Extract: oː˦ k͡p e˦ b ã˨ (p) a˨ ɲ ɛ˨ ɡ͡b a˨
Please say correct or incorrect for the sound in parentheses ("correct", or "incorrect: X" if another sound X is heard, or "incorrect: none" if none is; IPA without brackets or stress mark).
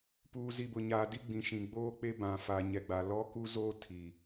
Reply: incorrect: f